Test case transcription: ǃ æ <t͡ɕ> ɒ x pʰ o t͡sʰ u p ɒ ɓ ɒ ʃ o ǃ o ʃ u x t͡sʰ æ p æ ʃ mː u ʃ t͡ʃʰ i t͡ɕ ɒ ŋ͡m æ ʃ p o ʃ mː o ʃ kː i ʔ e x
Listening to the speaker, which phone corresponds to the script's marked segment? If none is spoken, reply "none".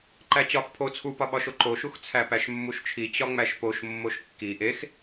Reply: t͡ɕ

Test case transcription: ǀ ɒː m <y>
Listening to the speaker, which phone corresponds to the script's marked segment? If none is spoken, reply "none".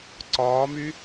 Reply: y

